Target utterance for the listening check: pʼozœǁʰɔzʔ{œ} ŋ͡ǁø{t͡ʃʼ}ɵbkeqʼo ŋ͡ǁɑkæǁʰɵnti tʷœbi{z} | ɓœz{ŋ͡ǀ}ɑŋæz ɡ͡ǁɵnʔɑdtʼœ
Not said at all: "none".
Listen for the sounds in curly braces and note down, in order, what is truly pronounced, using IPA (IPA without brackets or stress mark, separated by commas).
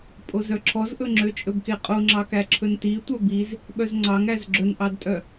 ɵ, t͡ʃʼ, z, ŋ͡ǀ